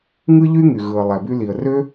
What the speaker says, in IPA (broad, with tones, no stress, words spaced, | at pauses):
ŋɯ˥ʎy˥ ŋy˩ɣɯ˩ə̯lˠæ˩ by˧li˩ə̯rø˥